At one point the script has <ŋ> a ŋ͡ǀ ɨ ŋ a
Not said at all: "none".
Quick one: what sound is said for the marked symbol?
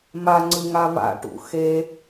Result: m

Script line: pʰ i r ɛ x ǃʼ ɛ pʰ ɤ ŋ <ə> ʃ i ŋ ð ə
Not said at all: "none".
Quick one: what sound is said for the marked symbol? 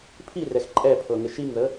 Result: ɪ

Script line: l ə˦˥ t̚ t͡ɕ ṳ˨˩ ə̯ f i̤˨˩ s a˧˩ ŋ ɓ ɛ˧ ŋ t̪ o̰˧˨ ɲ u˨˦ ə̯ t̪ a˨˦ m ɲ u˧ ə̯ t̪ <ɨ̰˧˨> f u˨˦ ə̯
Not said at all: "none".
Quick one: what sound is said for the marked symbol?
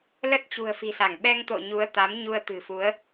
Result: ɨ̤˨˩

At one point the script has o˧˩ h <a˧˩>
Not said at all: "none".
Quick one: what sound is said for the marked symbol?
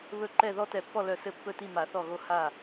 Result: a˧˩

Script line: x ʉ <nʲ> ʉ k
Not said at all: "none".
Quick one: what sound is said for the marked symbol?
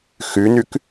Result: n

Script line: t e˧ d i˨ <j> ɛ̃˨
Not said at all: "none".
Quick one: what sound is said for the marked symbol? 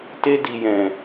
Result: j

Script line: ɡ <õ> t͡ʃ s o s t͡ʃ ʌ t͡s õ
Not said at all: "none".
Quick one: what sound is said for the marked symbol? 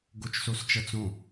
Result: o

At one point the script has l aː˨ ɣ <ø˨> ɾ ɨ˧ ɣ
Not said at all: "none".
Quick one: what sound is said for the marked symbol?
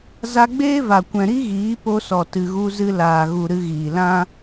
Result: u˨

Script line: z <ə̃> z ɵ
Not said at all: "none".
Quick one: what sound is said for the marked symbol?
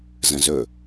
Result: ə̃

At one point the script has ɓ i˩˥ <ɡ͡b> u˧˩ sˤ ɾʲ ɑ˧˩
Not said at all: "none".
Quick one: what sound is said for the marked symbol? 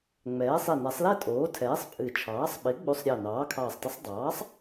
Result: ɡ͡b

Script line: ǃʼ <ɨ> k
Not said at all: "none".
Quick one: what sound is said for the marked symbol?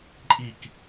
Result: i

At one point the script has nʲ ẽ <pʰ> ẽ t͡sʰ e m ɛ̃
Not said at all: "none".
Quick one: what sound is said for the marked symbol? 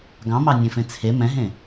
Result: f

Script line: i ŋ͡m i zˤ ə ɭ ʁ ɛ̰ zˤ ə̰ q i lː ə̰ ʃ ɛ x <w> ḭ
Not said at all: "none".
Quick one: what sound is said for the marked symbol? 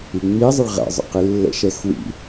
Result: w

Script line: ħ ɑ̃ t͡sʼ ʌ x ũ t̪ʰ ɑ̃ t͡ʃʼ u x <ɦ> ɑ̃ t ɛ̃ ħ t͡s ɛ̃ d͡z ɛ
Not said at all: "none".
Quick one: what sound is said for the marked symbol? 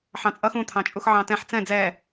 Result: ʕ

